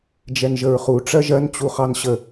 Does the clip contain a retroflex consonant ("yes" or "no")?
yes